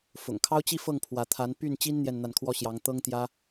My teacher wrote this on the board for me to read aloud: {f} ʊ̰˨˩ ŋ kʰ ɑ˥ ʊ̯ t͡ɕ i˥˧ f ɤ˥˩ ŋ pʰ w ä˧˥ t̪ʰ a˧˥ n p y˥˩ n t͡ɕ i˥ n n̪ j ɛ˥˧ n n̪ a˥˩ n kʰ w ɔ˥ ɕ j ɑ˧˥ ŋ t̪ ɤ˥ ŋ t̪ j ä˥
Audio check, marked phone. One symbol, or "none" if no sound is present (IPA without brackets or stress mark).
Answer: f